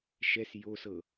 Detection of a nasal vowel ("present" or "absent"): absent